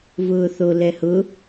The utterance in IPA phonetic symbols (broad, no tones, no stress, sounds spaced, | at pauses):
v ʊː θ o l ɛ h ʊ